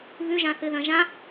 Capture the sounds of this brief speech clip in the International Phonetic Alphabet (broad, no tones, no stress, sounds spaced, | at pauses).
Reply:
β ʉ ʒ ã θ ɨ ð ɐ̃ ʒ ã